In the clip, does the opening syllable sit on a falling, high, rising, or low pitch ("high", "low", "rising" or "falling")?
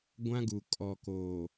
high